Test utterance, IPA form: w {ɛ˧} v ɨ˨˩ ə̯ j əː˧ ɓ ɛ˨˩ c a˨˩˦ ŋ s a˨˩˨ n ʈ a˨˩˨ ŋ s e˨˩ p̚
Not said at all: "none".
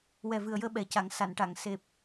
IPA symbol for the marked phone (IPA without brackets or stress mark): ɛ˨˩